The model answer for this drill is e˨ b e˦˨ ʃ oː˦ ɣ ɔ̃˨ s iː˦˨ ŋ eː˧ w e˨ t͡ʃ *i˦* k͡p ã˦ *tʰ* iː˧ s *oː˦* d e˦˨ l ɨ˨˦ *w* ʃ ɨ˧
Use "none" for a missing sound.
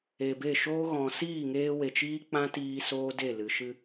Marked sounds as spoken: iː˦, t, oː˦, none

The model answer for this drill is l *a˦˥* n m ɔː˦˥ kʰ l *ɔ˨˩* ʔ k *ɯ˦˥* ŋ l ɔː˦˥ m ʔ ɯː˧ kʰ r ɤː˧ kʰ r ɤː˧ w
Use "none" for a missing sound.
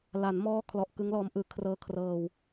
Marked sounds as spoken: a˩˦, ɔ˨˩, ɯ˦˥

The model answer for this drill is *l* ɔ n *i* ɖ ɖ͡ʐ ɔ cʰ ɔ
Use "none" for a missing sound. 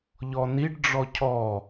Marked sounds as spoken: ʎ, i

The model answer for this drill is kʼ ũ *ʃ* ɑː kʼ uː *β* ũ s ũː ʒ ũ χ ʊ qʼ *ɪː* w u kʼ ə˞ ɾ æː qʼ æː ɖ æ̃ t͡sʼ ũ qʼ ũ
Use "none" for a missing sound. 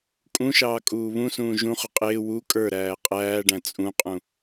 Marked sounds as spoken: ʃ, β, ɪː

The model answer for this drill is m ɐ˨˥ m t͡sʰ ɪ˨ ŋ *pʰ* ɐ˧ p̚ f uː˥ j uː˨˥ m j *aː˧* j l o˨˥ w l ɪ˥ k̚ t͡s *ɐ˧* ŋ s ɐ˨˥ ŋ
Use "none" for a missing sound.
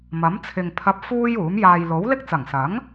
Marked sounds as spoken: pʰ, aː˨, ɐ˨˩

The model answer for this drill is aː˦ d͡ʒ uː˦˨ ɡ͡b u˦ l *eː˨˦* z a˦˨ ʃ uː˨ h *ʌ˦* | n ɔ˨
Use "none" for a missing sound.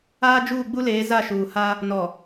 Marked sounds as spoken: eː˨˦, a˦

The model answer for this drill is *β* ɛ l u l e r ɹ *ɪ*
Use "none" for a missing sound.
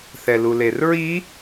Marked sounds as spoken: θ, i

